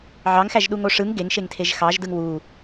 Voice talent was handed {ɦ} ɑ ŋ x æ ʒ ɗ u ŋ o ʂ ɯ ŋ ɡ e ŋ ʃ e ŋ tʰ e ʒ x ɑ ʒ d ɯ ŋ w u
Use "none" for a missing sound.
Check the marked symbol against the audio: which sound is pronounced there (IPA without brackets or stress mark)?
ʕ